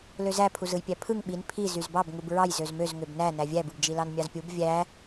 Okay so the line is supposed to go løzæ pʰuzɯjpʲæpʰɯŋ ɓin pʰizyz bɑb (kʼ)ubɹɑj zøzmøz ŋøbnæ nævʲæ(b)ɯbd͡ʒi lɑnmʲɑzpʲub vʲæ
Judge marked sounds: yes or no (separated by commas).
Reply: no, yes